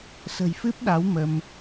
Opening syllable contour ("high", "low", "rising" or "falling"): low